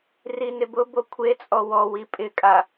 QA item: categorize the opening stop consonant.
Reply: plain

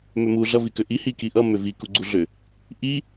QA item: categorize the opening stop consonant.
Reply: plain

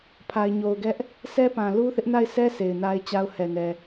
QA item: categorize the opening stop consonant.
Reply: aspirated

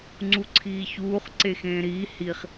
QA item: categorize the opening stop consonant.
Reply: click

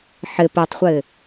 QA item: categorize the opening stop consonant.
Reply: plain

